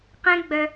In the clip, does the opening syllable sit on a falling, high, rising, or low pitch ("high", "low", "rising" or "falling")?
high